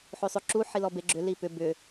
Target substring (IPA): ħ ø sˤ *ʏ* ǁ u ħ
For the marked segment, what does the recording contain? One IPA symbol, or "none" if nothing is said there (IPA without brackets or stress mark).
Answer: ʏ